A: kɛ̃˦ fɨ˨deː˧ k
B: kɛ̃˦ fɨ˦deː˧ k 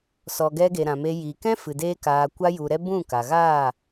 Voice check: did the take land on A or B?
A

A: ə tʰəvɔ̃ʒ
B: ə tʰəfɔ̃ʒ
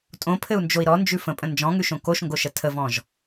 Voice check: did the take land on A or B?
A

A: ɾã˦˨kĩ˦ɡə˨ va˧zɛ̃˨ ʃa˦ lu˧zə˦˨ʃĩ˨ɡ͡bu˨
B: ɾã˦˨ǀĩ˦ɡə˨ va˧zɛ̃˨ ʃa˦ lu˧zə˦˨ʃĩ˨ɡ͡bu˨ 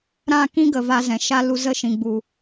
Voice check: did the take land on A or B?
A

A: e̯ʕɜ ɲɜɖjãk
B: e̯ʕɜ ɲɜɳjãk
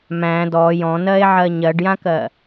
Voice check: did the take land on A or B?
A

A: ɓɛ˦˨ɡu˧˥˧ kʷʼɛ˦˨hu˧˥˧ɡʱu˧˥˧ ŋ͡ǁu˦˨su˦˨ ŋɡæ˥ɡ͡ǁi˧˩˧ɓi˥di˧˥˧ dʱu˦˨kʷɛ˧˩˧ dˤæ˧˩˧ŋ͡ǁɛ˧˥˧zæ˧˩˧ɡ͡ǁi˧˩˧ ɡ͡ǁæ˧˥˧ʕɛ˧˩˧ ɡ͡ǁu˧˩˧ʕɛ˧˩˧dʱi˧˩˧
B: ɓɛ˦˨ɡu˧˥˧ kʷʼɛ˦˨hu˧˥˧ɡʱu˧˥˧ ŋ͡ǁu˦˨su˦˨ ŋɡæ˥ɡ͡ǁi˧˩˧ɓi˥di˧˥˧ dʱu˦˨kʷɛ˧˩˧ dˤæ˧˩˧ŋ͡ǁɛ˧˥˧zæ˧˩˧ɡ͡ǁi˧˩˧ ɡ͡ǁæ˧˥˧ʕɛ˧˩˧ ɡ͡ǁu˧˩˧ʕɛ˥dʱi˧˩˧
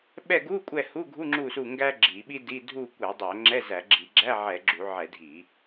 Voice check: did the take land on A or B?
A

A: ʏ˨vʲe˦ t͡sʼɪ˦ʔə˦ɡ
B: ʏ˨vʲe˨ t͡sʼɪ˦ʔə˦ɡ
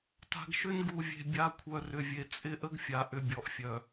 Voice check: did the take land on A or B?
B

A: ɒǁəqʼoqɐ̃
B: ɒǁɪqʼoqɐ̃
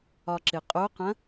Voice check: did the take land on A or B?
B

